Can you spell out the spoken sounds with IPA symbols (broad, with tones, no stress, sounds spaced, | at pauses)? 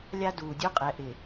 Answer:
lʲ a˦ d uː˨ dʲ u˦ qʼ ɛ˨ ʔ ɪ˨